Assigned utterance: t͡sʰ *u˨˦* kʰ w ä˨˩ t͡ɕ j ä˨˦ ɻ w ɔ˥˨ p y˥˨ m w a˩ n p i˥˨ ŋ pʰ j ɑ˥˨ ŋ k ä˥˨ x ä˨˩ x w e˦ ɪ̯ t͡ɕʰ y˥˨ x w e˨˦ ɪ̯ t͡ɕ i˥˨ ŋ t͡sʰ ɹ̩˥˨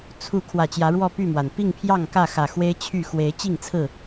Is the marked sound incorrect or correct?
correct